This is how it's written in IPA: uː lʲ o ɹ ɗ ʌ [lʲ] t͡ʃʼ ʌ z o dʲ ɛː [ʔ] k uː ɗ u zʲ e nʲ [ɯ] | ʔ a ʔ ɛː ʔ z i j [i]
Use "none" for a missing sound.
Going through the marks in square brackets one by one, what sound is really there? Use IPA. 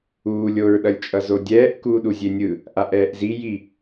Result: lʲ, ʔ, ɯ, i

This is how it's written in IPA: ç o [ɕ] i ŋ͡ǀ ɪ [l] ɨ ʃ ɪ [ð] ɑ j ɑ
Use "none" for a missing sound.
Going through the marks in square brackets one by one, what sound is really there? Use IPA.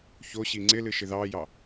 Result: ɕ, l, ð

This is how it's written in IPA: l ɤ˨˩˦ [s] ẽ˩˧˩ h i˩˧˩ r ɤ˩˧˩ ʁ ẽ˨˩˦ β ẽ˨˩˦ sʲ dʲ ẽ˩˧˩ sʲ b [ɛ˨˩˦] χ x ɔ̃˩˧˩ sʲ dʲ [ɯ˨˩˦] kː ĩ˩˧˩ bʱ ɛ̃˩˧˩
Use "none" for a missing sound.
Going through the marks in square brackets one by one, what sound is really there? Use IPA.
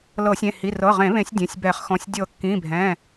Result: sʲ, ɛ˨˩˦, ɤ˨˩˦

